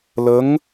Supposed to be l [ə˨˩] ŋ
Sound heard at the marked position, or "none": ə˧˥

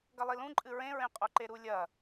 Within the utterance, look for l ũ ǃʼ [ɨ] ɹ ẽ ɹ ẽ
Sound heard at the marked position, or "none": ɨ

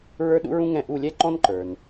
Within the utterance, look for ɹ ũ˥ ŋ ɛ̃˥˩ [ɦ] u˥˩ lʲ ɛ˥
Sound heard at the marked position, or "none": ʔ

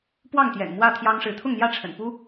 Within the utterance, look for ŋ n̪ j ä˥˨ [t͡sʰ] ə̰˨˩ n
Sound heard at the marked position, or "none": ʈ͡ʂʰ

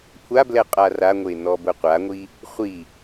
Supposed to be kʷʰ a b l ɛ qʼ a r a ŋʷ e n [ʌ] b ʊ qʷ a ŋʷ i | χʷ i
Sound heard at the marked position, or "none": ɔ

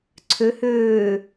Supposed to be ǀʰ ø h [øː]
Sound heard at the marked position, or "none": øː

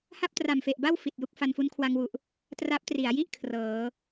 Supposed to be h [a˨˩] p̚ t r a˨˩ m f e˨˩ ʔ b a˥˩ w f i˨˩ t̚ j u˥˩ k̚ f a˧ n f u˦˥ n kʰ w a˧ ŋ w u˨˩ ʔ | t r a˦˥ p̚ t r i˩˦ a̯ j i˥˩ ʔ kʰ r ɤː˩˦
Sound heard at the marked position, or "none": a˥˩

